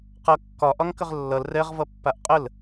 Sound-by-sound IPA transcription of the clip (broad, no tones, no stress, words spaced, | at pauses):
qʌ kːɒ ʔɒŋkəʁlːʌl rɛʁ vʌpːaʔqʼəl